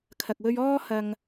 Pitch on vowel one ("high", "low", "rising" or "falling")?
low